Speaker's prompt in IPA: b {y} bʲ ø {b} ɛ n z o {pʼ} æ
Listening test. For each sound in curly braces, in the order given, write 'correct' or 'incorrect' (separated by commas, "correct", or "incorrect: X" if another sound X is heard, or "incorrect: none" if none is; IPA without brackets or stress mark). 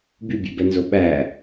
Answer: correct, correct, incorrect: ɓ